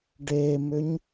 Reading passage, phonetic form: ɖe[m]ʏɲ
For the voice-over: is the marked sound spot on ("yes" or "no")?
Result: yes